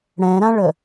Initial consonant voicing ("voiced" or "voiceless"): voiced